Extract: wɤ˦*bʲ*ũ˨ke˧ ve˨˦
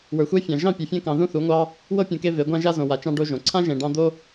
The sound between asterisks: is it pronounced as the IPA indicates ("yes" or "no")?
no